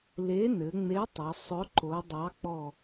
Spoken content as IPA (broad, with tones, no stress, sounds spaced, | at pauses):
l e˨˥ n ɘ˩˧ ŋ͡m e˨˥ tˤ ɘ˩˧ sˤ ʊ˨˥ ǃ o˩˧ dˤ ɑ˨˥ k͡p ɔ˧˩